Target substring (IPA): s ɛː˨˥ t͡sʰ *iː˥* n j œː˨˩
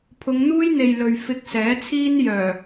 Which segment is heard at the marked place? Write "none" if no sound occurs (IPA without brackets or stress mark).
iː˥